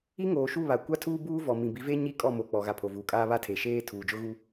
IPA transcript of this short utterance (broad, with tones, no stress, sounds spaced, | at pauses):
i˦ ŋ oː˨ ʃ u˦˨ β a˨ kʷ a˦ tʰ uː˦ b uː˦ v ɔ˨ m ĩ˨ b i˨˦ v e˦ ɲ i˦˨ kʼ ɔ˦˨ m o˨ k͡p ɔ˨ ɣ a˨ pʰ o˨ v uː˨ kʼ aː˦ β a˦ tʰ e˨ ʃ eː˦ tʰ uː˨ d͡ʒ ʊ˦ ɣ u˦